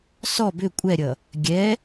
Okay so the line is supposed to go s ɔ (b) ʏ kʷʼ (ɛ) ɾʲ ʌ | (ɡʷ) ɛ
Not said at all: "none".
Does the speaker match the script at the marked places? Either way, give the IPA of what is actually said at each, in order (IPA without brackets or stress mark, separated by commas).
b, ɛ, ɡʲ